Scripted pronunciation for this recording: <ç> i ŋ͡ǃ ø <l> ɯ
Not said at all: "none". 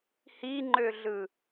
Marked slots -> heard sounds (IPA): h, ɮ

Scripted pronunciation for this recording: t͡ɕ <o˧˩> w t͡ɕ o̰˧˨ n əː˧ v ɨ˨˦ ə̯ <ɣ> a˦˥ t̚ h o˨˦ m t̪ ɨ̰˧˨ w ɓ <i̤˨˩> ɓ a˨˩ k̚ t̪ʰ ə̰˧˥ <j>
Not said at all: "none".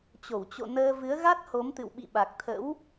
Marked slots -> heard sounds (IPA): o˧˩, ɣ, ḭ˧˨, w

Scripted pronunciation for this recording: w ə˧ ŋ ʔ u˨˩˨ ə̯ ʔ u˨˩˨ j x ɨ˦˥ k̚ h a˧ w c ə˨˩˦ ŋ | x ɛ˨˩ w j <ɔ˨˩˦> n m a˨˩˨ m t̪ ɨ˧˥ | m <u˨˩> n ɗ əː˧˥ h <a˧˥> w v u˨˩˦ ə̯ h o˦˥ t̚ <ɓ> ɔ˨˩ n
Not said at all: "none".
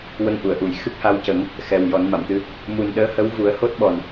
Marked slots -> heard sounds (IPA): ɔ˨˩˦, u˨˩, ə˧˥, ɓ

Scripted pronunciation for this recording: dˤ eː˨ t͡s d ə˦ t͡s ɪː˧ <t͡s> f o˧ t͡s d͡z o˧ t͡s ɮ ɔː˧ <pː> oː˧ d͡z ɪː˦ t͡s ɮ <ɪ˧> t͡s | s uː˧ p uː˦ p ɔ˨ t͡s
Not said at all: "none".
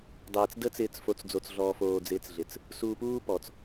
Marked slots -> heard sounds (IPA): t͡s, f, ɪ˧

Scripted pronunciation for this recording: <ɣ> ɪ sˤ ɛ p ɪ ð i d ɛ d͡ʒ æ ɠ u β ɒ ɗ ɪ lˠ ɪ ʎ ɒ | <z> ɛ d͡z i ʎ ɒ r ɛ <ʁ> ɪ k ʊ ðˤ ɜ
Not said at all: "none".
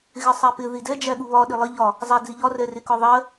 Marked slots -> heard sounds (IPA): ɣ, zˤ, r

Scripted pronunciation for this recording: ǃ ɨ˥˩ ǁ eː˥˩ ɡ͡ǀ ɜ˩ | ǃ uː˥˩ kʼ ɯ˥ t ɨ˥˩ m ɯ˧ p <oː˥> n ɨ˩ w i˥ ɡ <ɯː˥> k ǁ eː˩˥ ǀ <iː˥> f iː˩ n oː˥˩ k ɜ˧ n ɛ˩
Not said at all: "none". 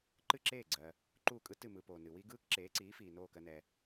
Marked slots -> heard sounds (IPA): oː˩, ɯː˥, iː˩˥

